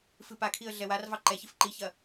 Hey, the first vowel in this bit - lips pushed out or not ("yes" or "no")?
no